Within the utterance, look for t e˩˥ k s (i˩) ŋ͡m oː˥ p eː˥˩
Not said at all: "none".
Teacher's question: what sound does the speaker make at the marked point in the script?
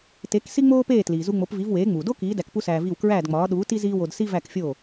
i˥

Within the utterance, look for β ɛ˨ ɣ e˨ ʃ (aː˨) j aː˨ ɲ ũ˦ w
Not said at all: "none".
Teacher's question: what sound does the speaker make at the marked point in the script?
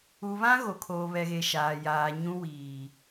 aː˨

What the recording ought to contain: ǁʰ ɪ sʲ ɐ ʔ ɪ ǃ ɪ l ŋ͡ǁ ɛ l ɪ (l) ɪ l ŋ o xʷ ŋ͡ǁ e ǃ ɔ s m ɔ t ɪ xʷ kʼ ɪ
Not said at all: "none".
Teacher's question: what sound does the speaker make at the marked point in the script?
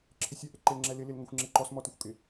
l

